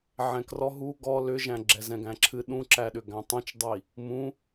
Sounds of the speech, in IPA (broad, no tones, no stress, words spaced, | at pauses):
ʕɛ̃krɔ ɦu ɡɔ lʏʒæ̃ ɡ͡ǁɛzɛ̃ɡæ̃ǁʰɨ ɗũǁæɗʏ ɡæ̃tˤũt͡ʃdˤi | mũ